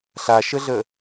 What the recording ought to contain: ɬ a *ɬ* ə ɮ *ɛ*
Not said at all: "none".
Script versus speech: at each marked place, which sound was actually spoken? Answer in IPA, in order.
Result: ʃ, ə

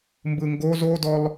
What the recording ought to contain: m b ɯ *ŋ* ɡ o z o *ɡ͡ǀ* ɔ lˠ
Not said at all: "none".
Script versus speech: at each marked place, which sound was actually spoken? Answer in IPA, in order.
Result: ŋ, d

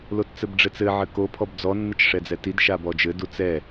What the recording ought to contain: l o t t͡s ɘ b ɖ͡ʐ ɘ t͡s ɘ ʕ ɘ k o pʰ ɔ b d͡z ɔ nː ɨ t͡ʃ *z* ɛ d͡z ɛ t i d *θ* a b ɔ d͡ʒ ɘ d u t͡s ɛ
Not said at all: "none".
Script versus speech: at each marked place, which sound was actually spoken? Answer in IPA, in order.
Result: ʂ, ʃ

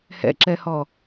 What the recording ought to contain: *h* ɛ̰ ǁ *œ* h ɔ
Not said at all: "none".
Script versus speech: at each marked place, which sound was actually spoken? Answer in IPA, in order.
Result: h, ɛ

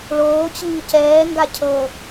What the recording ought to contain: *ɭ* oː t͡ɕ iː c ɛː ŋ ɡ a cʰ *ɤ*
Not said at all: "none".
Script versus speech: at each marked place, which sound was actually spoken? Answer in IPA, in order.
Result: ɭ, ɤ

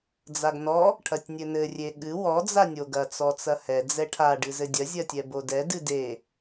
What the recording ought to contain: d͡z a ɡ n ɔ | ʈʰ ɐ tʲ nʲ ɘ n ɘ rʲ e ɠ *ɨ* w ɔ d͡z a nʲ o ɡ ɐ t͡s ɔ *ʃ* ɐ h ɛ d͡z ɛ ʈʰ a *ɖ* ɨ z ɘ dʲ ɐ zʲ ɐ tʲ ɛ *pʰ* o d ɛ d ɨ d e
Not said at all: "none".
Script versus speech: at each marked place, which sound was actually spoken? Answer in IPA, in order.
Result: ɨ, t͡s, ɖ, b

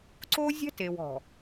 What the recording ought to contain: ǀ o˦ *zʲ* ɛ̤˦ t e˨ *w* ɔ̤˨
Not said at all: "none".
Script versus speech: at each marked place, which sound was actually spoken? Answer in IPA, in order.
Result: zʲ, w

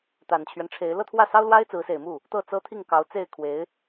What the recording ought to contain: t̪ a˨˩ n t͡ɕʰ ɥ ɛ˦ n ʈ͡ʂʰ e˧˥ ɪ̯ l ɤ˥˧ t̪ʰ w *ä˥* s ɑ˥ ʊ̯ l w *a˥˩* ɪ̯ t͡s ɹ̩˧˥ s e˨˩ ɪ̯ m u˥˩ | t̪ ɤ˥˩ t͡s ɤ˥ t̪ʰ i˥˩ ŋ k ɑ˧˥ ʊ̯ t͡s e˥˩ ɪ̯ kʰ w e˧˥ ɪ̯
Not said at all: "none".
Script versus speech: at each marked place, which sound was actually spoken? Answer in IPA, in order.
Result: ä˥˩, a˥

